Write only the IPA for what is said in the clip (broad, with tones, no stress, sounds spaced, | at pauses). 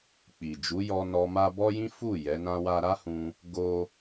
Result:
k͡p i˨ d͡ʒ u˨˦ j ɔ˧ n ɔ˧ m a˦ b ɔ˦ j ĩ˦ f u˦˨ j ɛ˨˦ n ã˦ w a˦ ɾ a˦ h ũ˧ | ɡ o˦